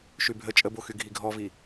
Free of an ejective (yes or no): no